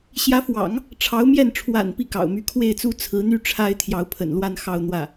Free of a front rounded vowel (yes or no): no